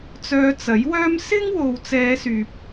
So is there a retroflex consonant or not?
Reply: no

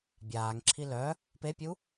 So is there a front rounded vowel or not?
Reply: yes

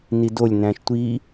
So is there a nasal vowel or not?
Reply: yes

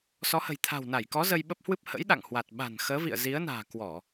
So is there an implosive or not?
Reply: yes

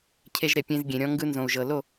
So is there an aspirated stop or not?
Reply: yes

